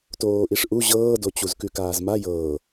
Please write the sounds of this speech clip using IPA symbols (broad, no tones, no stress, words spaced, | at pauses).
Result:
toːʔiʂʔu ʑɤːdo t͡ɕuzkʉkaːzma jɤː